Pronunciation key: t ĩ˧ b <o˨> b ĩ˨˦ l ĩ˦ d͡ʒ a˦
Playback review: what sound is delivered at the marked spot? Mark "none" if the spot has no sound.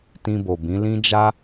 o˨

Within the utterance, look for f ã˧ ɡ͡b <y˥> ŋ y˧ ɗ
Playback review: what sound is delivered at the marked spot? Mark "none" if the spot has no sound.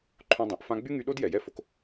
y˥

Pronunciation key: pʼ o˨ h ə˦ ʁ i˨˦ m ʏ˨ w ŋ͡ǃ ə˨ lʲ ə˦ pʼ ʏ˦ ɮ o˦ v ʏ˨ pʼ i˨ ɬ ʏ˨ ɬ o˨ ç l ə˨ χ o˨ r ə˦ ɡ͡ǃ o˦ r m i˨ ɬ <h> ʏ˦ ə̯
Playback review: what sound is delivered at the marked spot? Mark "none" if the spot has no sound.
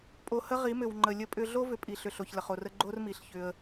ç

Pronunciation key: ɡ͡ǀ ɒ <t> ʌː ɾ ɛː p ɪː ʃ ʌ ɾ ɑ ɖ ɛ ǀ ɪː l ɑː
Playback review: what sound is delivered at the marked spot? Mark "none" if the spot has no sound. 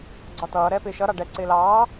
t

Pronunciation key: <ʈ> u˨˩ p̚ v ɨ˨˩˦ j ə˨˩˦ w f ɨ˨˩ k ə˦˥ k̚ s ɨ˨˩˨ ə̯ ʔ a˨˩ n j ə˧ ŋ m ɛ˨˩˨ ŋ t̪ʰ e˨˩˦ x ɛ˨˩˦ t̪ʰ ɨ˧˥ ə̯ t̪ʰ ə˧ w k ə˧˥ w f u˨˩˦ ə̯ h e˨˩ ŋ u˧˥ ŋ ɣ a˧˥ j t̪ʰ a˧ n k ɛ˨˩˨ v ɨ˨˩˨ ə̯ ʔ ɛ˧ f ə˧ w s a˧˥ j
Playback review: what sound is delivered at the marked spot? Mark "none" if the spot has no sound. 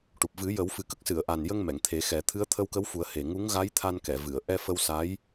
ʈ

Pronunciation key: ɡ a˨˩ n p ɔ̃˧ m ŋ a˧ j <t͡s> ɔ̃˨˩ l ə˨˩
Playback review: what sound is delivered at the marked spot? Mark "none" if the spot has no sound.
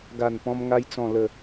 t͡s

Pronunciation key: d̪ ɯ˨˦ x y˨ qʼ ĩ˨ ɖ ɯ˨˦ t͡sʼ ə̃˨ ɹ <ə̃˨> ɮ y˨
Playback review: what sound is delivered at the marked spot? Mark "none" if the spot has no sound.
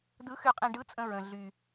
ə̃˨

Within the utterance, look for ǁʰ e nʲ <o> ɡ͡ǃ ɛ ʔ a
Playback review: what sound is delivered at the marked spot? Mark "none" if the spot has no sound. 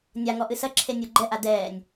o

